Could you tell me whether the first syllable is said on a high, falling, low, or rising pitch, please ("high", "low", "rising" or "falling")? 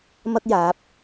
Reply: high